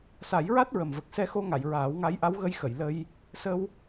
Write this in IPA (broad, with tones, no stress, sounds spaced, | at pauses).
s a˨˩˦ j ɹ a˦˥ t̚ ɹ ə˨˩ m v ə˨˩ k̚ s ɛ˧ x o˧ ŋ a˨˩˨ j ɹ aː˨˩˦ w ŋ a˧˥ j ʔ a˧˥ w ɣ ə˧ j x ə˨˩˨ j l ə˧ j | s ə˧ w